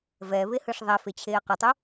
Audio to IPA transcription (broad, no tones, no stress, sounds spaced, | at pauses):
v ɛ β e h ɯ ʂ ðˤ ɛ f e t͡ɕʰ eː q ɯ tˤ u